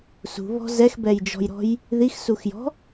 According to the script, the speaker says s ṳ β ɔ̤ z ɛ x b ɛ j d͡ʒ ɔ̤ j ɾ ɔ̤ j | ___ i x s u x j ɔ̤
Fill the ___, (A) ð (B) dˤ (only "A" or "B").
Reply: A